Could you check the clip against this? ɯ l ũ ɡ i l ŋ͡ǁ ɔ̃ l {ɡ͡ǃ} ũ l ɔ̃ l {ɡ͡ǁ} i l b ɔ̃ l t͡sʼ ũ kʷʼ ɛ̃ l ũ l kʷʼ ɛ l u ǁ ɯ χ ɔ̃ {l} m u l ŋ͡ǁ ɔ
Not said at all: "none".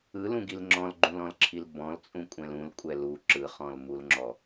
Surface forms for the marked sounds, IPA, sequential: ɡ͡ǃ, ǁʰ, l

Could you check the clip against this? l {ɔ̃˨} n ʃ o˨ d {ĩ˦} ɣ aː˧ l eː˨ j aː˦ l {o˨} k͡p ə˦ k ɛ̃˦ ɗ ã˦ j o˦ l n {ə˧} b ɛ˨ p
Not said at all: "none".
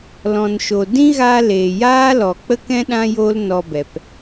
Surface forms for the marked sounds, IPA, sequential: ɔ̃˨, ĩ˦, ɔ˨, ɔ˧

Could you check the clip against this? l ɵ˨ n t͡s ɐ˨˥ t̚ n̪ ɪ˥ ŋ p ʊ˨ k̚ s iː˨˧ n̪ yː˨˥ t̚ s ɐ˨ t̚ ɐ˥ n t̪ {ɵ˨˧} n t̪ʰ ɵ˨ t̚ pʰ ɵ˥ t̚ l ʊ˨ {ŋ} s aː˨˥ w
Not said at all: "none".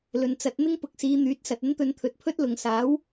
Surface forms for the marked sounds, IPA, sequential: ɵ˨˧, ŋ

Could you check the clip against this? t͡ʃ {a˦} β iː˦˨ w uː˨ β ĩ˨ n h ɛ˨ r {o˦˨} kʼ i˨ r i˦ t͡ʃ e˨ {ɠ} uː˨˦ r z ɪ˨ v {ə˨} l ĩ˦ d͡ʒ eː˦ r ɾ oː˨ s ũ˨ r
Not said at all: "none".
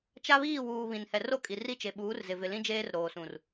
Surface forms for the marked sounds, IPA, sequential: a˦, o˦˨, ɓ, ɪ˨

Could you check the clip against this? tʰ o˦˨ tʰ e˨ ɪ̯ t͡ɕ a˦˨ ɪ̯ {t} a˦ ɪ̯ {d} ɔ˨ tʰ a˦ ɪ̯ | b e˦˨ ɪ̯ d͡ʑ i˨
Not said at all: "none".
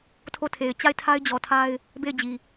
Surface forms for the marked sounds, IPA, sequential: tʰ, d͡ʑ

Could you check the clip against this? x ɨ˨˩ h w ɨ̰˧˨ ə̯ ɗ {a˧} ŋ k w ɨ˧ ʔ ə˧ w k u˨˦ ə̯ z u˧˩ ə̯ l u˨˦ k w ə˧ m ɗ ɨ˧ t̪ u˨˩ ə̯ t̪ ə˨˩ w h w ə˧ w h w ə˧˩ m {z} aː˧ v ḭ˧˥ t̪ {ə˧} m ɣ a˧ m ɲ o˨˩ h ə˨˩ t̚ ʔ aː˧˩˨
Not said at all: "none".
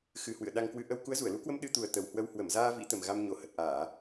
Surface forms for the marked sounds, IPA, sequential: a˧, z, ə˨˩

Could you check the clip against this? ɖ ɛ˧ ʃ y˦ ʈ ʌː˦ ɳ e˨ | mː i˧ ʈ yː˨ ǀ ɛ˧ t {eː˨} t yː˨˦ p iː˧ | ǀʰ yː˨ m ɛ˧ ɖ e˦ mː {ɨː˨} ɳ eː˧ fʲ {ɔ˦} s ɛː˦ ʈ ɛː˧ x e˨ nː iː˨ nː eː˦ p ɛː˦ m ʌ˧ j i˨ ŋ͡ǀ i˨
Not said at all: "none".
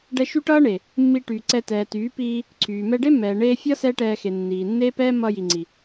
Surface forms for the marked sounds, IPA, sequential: ɛː˨, ɛː˨, ʌ˦

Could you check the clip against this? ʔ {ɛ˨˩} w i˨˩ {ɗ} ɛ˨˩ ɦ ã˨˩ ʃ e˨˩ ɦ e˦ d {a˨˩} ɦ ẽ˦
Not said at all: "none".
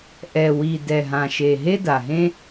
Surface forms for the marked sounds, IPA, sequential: ɛ˨˩, d, a˨˩

